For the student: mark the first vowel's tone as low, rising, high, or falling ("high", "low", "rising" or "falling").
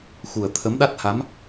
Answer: low